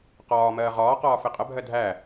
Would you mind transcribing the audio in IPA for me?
qɒː mɜːʁɒːqɒː fɪqʼəbʱɜ dʱæ

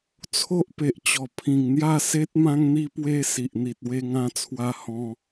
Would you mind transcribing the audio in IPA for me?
t͡sʰo˦ʔpe˨ʔt͡ɕɔ˨˩ pʰĩ˨˩ŋn̪ja˥˧se˦t̚ mã˧ŋn̪i˧pwe˧ si˨ʔn̪i˨t̚ we˧ŋã˧t͡sʰwa˧ hɔ̃˧

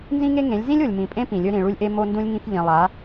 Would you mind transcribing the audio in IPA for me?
nzĩ˦ŋe˦ŋẽ˨˦lʲ zĩ˦lʲo˨lʲmĩ˨pʼẽ˦ pĩ˨lʲɵ˦ ɾĩ˨ɭu˦lʲʔe˦ mo˦ndũ˦lʲŋĩ˦f ʎĩ˨ lˠa˨˦

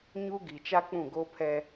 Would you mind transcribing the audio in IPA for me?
ɲu˦ɡi˨ t͡ʃa˦k͡pũ˦˨ɡo˦pʰɛ˦

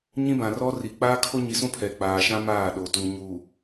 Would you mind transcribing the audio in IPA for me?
ɲĩ˦bã˨rɔ˦ri˨ k͡paː˦kʰo˦ɲi˨sũ˦ pʰɛ˨k͡paː˨ʃã˦ maː˦˨ɗo˨tu˨ ɲu˨

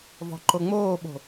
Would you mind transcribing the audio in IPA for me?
vɔ̤ǃoŋ͡moːɓo̤

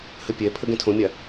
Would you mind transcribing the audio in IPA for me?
həpʲɛ pʰəɡɛ̃tʰõmʲa

